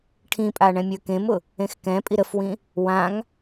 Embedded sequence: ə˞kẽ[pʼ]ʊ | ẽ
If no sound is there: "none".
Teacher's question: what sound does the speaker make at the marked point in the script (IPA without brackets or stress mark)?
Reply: m